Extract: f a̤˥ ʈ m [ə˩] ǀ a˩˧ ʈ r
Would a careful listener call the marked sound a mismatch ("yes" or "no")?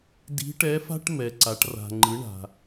yes